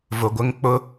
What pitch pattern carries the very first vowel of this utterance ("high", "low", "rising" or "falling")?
low